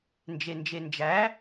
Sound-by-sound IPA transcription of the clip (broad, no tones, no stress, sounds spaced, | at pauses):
n d͡ʒ e n d͡ʒ e n d͡ʒ æ